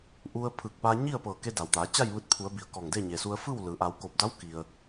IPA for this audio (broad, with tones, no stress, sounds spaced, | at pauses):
ʔ u˧ ə̯ pʰ ɯː˧˩ k̚ p aː˧ ɲ i˥˨ ə̯ p ɤː˧˩ k e˧ d a˩ w t̪ aː˩˧ t͡ɕ a˥˨ j ʋ ɯː˧ t̚ pʰ u˩˧ ə̯ b i˩ ə̯ k ɔː˧˩ ŋ d e˥˨ ɲ e˩ s u˧ ə̯ f ɯː˥˨ w l ɯː˩˧ ʔ a˩˧ w k o˧˩ p̚ d a˧˥ w k i˩ ə̯